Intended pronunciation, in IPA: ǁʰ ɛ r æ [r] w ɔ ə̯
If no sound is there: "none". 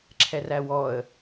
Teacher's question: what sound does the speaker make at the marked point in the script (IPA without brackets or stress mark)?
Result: none